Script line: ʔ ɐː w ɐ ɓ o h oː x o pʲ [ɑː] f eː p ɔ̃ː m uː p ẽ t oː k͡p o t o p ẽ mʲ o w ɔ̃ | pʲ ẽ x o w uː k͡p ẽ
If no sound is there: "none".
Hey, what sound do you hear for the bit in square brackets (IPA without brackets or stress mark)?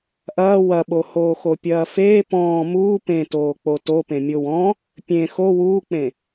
ɐː